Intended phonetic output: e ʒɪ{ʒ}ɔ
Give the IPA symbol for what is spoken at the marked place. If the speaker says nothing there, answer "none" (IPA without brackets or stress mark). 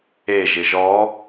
ʒ